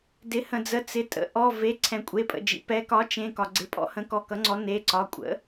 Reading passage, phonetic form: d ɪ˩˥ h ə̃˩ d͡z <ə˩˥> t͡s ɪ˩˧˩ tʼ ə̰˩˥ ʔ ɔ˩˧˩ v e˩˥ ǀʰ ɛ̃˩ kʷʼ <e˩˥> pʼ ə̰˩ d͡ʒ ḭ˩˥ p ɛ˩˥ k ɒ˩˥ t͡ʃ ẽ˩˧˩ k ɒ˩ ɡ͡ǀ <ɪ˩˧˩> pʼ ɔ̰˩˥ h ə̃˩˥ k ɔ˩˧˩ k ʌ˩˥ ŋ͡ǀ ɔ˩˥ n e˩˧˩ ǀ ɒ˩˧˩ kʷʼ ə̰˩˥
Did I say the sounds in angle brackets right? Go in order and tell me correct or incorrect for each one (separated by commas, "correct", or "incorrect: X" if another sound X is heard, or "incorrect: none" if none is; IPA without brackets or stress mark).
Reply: correct, incorrect: e˩˧˩, incorrect: ɪ˩˥